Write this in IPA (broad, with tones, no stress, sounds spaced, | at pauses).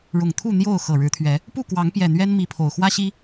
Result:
ɻ ʊ˨˩ ŋ t̪ʰ u˥˨ n̪ j o˥˨ ʊ̯ x ɤ˨˩ ɻ ɻ̩˨˦ t̪ʰ ɥ ɛ˨˦ | p u˥˨ k w ɑ˨˦ ŋ p j ɛ˨˩ n̪ ɥ ɛ˦ n m i˨˦ pʰ o˨˩ ʊ̯ x w ä˦ ɕ i˦